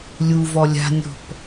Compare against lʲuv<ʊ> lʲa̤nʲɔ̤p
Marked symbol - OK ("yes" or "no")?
no